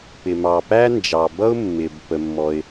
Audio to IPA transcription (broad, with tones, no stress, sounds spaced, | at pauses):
p ɪ˩ m ɑ˩ p æ˥ n d͡ʒ ɑ˩ b ʌ˥ ʊ̯ mː ɪ˩ b p ə˩ mː ɔ˩ ɪ̯